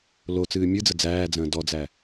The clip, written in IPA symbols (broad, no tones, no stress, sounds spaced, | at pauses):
l o t͡s ɨː mʲ ɨ d͡z ə d͡z æː d͡z ə̃ː d ɔ d͡z æ